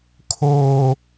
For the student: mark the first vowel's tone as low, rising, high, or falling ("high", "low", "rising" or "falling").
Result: high